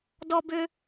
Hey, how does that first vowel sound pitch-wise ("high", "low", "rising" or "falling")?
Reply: high